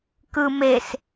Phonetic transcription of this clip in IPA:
k ɯ m e s

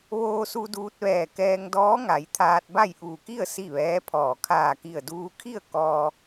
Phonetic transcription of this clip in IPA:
ʋ oː˧ s u˧ d uː˧ t̚ ʋ ɛː˧˩ k ɛː˧ ŋ d ɔː˧˥ ŋ a˩˧ j t̪ʰ aː˧ t̚ b a˥˨ j ʔ uː˧˩ k i˥˨ ə̯ s i˥˨ ʋ ɛː˧˥ pʰ ɔː˧˩ kʰ aː˧˩ k i˧˩ ə̯ d uː˧ kʰ i˥˨ ə̯ k ɔː˧

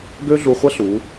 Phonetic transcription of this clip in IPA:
ɡ ø˥ ɮ u˧ χʷ ɐ˥ ɬ u˩˧

